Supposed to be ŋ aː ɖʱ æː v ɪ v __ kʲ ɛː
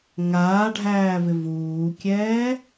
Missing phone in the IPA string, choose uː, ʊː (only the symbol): uː